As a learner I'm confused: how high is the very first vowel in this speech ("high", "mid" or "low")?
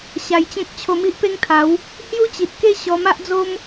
low